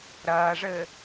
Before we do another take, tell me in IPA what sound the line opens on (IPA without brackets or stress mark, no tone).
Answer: ɾ